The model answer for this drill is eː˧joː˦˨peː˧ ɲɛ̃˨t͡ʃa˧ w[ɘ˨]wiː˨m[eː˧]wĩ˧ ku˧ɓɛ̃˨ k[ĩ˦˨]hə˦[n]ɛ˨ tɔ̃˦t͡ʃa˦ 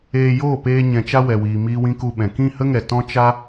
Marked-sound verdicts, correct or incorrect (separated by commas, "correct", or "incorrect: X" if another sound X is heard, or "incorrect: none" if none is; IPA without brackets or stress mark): incorrect: ɛ˨, incorrect: iː˧, correct, incorrect: ŋ